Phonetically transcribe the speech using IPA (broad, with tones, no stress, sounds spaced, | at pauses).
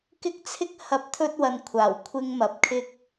k ɪ˥ k̚ t͡sʰ ɪ˥ k̚ h ɐ˨˥ p̚ t̪ʰ ɵ˧ t̚ w ɐ˨ n kʷʰ aː˨˩ w kʷʰ ɪ˧ ŋ m ɐ˨ p̚ kʰ ɪ˧ k̚